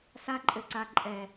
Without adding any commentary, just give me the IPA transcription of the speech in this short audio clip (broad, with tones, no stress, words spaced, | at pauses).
sa˧ǃʼɘ˨ǀa˨ ǃʼɛ˨